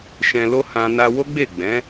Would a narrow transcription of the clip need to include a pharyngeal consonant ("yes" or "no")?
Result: no